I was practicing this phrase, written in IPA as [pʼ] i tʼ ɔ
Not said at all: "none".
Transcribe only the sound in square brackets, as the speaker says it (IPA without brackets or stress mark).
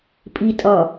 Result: pʼ